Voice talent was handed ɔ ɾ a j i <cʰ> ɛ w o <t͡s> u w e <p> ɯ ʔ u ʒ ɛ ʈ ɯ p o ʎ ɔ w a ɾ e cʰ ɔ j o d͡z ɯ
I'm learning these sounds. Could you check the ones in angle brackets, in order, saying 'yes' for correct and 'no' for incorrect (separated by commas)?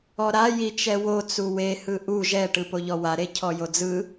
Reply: no, yes, no